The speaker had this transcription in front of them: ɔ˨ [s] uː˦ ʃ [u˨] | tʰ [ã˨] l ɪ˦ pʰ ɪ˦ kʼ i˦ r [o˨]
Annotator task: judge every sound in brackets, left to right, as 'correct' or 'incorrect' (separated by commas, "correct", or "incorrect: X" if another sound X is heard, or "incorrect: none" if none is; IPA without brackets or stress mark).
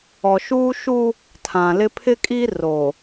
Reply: incorrect: ʃ, incorrect: u˦, correct, correct